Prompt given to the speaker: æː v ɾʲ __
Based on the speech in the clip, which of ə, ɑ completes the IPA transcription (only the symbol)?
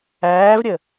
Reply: ə